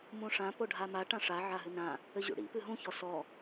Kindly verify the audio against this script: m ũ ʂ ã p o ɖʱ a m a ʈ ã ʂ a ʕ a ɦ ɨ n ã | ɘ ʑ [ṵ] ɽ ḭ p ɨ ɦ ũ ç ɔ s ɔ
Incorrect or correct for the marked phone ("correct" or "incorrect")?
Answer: correct